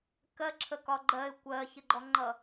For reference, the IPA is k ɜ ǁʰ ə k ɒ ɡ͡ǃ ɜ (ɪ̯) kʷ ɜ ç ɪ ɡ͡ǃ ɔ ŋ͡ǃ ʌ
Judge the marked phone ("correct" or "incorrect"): correct